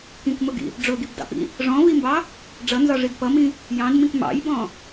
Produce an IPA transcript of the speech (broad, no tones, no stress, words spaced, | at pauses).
kĩkmʊɡḭ | ɖ͡ʐʊɡibdɑ̰pḭ | ʐɔ̃vimbɑ | ɖ͡ʐʌnzɒʐid pʌmĩ | jɑ̃dmĩk mɑ̰jbɔ̃